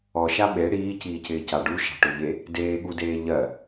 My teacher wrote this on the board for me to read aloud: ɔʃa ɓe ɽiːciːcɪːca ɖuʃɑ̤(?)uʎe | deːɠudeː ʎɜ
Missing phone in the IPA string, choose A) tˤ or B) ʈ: B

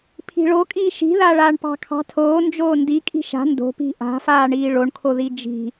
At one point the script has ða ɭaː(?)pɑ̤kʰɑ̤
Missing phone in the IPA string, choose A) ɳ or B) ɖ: A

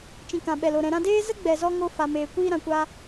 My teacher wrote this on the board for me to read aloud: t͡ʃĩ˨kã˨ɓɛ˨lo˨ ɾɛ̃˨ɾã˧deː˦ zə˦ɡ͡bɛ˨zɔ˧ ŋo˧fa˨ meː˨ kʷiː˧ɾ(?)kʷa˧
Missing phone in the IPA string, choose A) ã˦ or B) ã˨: B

